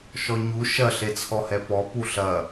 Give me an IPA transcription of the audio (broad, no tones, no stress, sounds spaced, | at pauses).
ʃ ɔ ɲ u ʃ ɐ ɬ e t͡sʰ ɔ h ɛ p ɔ p u ɬ ɐ